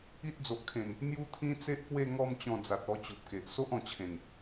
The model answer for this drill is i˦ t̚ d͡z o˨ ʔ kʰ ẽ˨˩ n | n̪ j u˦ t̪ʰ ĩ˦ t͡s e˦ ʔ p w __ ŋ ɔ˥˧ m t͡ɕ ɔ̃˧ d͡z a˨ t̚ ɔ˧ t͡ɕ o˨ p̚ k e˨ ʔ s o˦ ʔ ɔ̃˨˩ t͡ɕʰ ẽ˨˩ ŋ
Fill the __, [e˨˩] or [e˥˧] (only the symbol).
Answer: e˥˧